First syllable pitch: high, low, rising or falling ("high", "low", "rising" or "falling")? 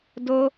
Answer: high